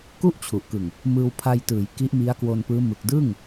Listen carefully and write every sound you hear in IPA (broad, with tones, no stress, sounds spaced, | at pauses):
k u˥˩ ʔ t͡ɕʰ u˨˩ ʔ k ɯ˨˩ ŋ | m ɯː˧ w pʰ a˧ j t ɯː˩˦ j k i˦˥ ʔ m i˦˥ a̯ k w o˧ n p ɯː˦˥ m ɯ˨˩ k̚ d ɯː˥˩ ŋ